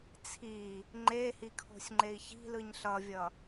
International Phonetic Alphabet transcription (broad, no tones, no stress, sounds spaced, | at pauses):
t͡sʰ i | ŋ͡ǃ e h i kʰ o̤ sʲ ŋ͡ǃ e i̯ ç i̤ l ɯ ɲ ɬ ʌ vʲ ʌ